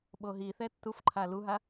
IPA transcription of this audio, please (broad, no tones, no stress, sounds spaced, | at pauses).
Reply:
ɓ o ɦ i θ ɛ tː u f ǃʰ a l u ɦ a